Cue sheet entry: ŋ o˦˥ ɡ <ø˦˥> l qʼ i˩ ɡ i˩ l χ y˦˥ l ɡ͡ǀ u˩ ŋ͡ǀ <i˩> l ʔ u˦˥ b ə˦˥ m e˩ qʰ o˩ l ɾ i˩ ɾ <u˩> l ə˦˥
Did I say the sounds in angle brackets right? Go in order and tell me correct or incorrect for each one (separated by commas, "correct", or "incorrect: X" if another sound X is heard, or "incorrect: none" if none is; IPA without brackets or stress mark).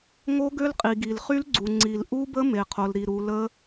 correct, correct, correct